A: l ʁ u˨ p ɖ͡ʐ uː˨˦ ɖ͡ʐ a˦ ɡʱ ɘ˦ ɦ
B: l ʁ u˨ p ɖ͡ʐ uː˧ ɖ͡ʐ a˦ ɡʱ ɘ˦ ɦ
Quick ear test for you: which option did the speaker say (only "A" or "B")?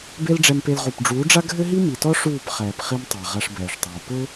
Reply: A